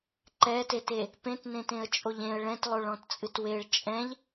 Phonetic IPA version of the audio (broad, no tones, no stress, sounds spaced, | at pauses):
ǃ ɛ t e t e | p ẽ t n ẽ t ẽ ə̯ t͡ʃʼ o ʎ ẽ ə̯ ɭ ɛ̃ t lˠ o ɭ ɔ̃ t t͡sʼ ɨ t w e ɭ t͡ʃʼ ɛ̃ ʎ